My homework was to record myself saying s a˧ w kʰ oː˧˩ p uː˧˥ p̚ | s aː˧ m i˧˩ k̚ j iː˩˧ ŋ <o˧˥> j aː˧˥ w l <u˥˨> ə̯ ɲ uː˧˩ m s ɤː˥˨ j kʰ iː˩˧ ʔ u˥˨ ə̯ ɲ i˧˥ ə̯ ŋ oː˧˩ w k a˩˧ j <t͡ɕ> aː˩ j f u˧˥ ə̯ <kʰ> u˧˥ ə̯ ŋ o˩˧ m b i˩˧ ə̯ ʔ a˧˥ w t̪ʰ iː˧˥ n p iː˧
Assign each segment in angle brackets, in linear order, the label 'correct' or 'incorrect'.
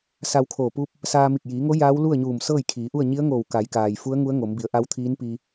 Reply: correct, correct, incorrect, incorrect

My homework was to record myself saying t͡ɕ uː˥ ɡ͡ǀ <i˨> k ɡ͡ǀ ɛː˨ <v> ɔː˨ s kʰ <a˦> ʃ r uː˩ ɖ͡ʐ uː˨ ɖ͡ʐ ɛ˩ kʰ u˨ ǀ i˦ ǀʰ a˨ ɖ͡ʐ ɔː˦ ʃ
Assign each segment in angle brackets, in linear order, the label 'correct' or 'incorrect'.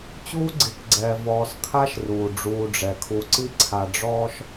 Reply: correct, correct, incorrect

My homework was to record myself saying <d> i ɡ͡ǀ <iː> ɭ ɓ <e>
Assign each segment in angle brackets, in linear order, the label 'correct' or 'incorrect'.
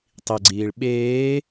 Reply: incorrect, correct, incorrect

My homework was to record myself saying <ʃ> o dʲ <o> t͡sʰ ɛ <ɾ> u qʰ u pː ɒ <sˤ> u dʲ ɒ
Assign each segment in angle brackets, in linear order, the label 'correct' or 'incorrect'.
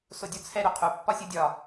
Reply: incorrect, correct, correct, incorrect

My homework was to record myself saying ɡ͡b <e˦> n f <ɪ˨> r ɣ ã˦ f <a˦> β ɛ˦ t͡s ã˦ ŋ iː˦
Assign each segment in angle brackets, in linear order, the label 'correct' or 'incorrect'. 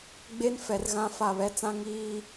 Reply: correct, incorrect, incorrect

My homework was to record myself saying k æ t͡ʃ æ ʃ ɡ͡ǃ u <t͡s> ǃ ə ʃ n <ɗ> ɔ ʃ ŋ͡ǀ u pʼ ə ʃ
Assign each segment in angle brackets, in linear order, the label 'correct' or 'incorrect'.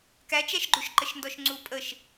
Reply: incorrect, incorrect

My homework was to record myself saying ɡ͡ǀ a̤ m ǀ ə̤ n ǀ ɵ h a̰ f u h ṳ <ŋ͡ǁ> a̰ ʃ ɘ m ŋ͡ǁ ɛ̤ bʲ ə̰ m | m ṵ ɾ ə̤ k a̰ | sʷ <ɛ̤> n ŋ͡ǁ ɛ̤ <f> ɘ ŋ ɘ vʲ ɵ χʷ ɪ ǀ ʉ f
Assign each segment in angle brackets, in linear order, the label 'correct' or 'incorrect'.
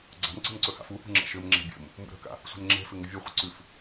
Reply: correct, incorrect, correct

